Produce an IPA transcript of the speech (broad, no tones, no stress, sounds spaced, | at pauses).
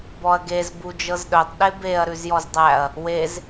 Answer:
b ɔ ɐ̯ ɡ e z b u d͡ʒ ɤ z ɗ œ tˤ ɗ e b e ɐ̯ ɾ ʉ z j ɔ z dˤ æ ɐ̯ | w e z